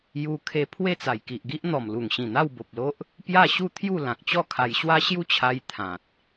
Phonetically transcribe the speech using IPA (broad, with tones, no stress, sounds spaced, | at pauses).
j u˧ kʰ e˧ pʰ w e˥˧ t͡s a˨˩ j k i˨ ʔ ɡ i˦ ʔ n̪ ɔ˨˩ m l u˨˩ ŋ ɕ ĩ˨˩ n̪ a˥˧ w b o˨ p̚ l o˦ ʔ | p j a˥˧ ɕ u˥˧ t̪ʰ j u˥˧ l ã˨ k̚ t͡ɕ ɔ˥˧ kʰ a˧ j ɕ w a˦ ɕ j u˥˧ t͡ɕʰ a˧ j t̪ʰ ã˨ t̚